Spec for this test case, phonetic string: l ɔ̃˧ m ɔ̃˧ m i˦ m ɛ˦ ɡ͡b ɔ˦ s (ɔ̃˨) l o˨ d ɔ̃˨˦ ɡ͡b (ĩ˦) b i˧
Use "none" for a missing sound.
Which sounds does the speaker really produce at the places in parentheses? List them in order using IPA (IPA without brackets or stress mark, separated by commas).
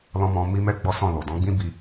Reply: ɔ̃˦˨, ĩ˦